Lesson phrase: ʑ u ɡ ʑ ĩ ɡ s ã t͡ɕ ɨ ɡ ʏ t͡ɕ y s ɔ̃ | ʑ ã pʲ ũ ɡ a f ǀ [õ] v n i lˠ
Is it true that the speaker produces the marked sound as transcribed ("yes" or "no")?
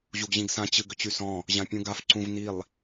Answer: no